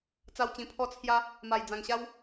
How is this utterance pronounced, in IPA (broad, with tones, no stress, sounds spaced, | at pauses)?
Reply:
t͡s a˧ w t͡ɕ ĩ˨˩ pʰ ɔ˦ t͡sʰ j a˦ | m a˨˩ j d͡z ã˨˩ ŋ ɕ a˦ w